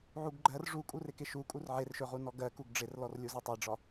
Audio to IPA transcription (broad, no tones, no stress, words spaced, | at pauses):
ʕuɡɡ͡ǃɜr ʐukʼurɪkɪ ʃu kʼurʕerʃɵ ʁunɔɡɜ kuɡɖ͡ʐɪrlɔrlʲu zɒtˤɜɖ͡ʐɒ